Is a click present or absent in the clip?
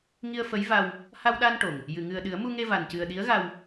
absent